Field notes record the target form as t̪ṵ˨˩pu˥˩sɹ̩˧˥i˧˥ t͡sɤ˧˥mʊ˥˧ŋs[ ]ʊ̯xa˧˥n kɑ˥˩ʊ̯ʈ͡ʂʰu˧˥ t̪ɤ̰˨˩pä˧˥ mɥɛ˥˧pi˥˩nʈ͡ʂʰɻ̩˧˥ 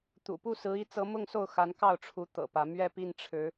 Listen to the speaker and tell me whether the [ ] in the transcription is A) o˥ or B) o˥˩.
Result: B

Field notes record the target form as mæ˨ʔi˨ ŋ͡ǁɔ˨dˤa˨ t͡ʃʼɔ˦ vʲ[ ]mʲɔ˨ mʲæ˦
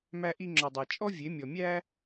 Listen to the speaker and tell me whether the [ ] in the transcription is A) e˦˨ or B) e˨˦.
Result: B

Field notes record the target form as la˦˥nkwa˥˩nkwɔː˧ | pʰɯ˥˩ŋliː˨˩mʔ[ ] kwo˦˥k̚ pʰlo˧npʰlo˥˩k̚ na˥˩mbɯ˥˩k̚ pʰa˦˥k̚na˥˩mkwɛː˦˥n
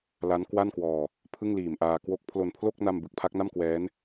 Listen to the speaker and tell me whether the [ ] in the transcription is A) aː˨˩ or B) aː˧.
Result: B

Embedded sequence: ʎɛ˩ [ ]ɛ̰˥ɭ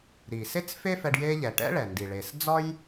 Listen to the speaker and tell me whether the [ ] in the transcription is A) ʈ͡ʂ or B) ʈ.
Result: B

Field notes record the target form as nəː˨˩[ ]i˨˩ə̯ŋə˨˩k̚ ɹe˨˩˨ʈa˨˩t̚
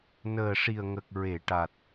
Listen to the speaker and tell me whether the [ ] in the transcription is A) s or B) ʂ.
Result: B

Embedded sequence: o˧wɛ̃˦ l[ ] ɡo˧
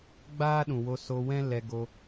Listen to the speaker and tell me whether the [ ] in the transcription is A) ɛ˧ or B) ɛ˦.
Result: A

